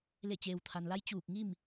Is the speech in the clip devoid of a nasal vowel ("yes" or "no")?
yes